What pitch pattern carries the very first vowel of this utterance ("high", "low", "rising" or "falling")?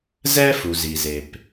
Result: high